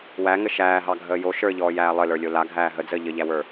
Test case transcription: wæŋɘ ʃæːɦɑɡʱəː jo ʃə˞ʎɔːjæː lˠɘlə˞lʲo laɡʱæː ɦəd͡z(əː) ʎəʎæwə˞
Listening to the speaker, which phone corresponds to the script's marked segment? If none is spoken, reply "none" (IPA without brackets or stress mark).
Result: əː